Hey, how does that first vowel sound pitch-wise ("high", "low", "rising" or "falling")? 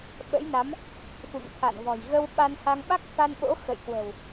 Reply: rising